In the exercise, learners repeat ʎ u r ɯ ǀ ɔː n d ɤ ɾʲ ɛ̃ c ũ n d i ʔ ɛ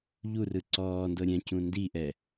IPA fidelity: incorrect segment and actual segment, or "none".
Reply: none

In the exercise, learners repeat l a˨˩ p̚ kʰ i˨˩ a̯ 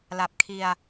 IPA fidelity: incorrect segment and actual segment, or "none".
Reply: i˨˩ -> i˧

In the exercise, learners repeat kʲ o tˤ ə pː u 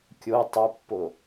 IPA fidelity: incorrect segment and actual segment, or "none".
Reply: u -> o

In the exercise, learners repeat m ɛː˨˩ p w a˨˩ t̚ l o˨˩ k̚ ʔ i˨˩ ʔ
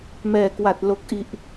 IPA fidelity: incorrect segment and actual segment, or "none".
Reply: p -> k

